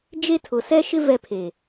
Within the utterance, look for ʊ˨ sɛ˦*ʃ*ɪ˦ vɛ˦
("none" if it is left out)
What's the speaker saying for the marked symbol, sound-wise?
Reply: ʃ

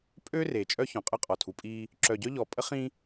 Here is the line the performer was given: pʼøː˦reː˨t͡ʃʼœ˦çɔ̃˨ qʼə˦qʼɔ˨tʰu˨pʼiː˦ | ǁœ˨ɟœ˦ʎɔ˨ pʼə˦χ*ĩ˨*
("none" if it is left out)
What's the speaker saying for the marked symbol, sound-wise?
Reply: ĩ˦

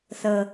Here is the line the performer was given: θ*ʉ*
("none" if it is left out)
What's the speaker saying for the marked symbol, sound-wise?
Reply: ə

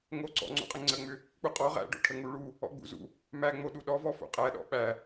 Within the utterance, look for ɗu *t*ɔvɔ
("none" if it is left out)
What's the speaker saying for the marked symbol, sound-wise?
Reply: ɗ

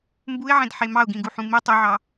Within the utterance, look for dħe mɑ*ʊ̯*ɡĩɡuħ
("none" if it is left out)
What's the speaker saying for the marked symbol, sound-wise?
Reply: ʊ̯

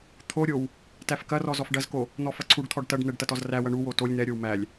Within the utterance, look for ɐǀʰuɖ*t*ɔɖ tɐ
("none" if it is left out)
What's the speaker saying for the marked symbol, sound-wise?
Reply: t̪ʰ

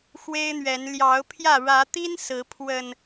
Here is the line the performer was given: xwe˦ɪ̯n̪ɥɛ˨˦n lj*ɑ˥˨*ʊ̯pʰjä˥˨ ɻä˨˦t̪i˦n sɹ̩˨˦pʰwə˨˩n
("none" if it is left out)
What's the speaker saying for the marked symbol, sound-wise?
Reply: ɑ˨˦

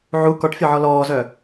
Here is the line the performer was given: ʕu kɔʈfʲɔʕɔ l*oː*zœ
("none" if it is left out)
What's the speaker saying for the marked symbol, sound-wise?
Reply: ɔː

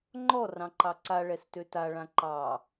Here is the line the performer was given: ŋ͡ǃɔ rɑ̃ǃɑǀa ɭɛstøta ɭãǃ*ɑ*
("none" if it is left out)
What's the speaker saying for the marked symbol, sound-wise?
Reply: ɑ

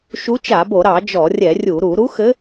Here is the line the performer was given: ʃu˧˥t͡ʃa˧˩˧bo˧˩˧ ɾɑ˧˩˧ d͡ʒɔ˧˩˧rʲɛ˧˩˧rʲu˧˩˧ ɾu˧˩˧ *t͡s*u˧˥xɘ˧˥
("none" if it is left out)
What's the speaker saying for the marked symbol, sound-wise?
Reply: ɾ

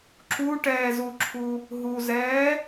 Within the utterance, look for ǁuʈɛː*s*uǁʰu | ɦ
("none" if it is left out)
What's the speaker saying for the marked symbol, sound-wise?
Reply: z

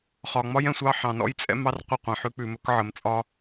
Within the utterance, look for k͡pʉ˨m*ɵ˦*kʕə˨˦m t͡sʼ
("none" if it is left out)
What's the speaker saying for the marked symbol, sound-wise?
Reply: ɵ˦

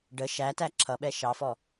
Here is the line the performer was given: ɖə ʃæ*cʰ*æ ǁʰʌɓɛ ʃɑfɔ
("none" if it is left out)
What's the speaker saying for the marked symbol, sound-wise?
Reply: t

